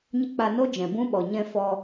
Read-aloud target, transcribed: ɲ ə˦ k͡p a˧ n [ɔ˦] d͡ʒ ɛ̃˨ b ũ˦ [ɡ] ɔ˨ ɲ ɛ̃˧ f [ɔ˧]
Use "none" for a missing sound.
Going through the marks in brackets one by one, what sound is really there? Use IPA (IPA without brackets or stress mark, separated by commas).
o˦, ɓ, ɔ˧